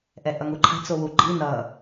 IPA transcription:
ʔ ɛ ʔ ʌ ŋ u ǃʰ a̤ t͡s o w u ɡ͡ǃ i n ʌ

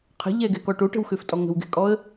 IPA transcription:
qʰ ə̤ ʎ ɛ ɡ ɛ k ɔ ʈ o ʈ ə̤ w x ø f tʼ ɔ ŋ ə̤ w ɡ ɛ̤ kʼ ɔ ə̯

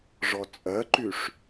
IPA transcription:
ʐ ɔ t͡sʼ ɜ ǃ y ʂ

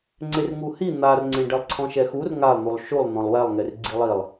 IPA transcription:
ŋ͡ǀ e r ŋ u h i n̪ a r ŋ͡ǀ ẽ ɖ ɛ lˠ ǀʰ ɔ̃ ʃ ɛ x u r ŋ a lˠ n̪ u lˠ ʃ u lˠ n̪ ɔ̃ lˠ w ɛ lˠ ŋ e r ɡ͡ǀ i lˠ i lˠ

